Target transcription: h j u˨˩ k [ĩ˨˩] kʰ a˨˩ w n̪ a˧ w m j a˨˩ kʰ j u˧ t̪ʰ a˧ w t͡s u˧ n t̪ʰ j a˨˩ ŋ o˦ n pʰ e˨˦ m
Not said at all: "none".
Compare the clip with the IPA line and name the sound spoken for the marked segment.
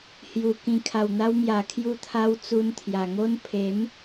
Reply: ĩ˨˩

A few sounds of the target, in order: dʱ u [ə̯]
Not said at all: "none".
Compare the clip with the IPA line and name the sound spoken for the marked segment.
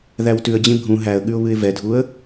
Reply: ə̯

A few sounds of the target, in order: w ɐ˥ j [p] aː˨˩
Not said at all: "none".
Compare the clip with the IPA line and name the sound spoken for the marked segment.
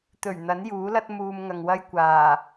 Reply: kʷ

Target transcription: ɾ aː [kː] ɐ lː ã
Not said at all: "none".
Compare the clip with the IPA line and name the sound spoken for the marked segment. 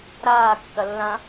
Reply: kː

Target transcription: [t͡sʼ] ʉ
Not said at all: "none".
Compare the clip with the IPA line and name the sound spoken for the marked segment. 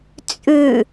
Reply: t͡sʼ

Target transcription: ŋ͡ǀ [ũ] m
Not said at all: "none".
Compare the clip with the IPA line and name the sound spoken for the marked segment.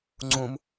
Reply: ũ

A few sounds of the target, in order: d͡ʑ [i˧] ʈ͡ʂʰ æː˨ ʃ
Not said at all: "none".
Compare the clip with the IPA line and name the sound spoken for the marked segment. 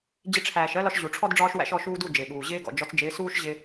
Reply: ɪ˧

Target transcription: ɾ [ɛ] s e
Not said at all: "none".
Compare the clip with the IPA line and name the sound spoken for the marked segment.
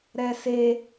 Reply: ɛ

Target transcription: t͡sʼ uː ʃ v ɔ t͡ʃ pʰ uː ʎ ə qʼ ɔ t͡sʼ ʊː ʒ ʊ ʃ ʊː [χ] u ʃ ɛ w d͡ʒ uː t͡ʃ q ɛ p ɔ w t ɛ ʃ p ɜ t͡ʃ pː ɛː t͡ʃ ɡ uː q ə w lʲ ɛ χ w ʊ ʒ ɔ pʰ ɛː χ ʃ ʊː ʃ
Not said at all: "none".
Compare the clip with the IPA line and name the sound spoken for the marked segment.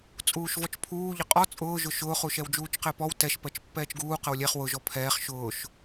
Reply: χ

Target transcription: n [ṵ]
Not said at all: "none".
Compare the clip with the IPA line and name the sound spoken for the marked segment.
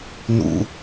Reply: ṵ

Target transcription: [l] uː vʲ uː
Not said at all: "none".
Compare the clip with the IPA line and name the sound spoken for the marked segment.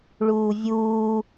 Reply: ɭ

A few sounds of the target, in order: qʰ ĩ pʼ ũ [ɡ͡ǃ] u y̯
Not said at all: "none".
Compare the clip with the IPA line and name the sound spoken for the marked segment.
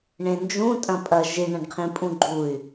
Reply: ɡ͡ǃ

